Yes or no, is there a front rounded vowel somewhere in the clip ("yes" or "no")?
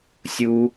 no